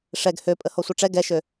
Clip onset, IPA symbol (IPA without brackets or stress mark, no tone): ʂ